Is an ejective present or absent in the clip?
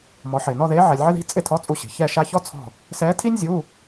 present